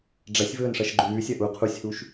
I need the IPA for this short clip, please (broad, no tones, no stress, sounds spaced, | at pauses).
ɖ͡ʐ ɐ sʲ v ɵː n ʂ ɐ ʃ ɡ͡ǃ ʉː sʲ ɐ ʔ u qʰ u sʲ h u ʃ